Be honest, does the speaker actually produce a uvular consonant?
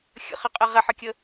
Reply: yes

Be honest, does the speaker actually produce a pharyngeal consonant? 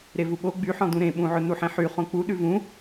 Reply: yes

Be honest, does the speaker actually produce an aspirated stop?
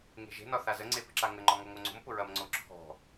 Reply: yes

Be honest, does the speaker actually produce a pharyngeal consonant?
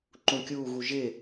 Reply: no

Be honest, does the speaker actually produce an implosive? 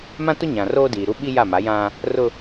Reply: yes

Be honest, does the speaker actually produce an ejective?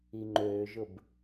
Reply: no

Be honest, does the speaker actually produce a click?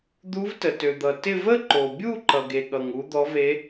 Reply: yes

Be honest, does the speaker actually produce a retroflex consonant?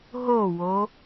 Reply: no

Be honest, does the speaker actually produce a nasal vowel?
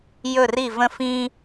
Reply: yes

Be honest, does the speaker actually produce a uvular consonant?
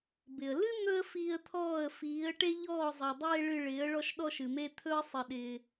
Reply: no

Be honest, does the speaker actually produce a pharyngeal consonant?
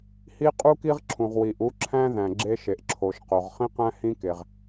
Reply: no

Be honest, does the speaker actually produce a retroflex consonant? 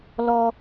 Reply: no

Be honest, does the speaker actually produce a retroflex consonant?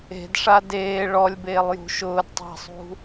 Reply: yes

